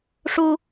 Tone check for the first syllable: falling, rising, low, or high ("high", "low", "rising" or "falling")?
high